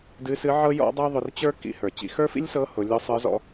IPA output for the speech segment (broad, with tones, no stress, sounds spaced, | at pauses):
d ɨ˧˥ s ɨ˧˥ ʕ ɤ˥ j ɔ̰˥ dˤ ɤ˥ ðˤ ʊ˧ r t͡ɕ ə˞˥ k ḭ˧˥ h ə˞˩ t͡ɕ ḭ˧ x ə˞˥ f ḭ˥ lʲ s ɤ˧˥ h ʊ˩˧ lʲ ʊ˧˥ sˤ ə˞˧˥ z ɔ̰˧